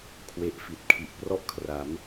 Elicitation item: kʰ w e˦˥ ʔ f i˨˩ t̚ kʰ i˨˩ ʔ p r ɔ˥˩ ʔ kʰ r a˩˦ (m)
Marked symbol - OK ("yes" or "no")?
yes